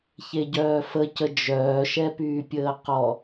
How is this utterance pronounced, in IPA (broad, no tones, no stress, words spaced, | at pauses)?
çeɟœːfəcə d͡ʒœːʃɛpyːpʲəː qɔ